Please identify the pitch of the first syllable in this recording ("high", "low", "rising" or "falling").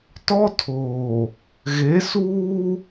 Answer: high